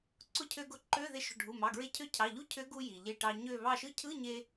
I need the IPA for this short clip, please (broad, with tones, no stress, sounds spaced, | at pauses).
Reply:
ǀ ʊ˧˥˧ cʰ ø˧ ɡ ʊ˧˩ ǃ ø˧˥˧ ð e˧˩ ʃ ʊ˩˧˩ ɖʱ u˩˧˩ m ɑ˩˧˩ ɡ ɹ e˧ cʰ ø˧˥ cʰ ɑ˩˧˩ ʎ u˧˥˧ cʰ ø˧˥ ɡ u˧ j i˩ ʎ e˧˩ ʈ ɑ˧ ɲ ø˧˩ β ɑ˧˩ ʃ ɯ˧˥ cʰ ɯ˧˥˧ ɲ e˧